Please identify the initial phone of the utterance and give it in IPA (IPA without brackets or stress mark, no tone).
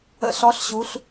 ə̰